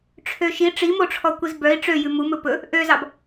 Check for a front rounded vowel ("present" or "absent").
present